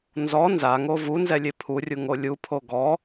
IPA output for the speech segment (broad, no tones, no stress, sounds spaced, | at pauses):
n z ɔ n z a ŋ o v u n z ɛ lʲ e pʰ u rʲ u ŋ o lʲ u pʰ o ɡ ɔ